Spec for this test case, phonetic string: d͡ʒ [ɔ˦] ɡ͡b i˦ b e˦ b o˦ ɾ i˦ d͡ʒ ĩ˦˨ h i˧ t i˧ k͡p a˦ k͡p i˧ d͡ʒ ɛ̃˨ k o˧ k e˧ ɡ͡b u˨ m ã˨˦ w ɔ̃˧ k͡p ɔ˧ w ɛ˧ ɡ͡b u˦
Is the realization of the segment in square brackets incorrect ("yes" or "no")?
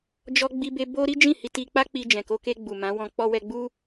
no